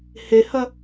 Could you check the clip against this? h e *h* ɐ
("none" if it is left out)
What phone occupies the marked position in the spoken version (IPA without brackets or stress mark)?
h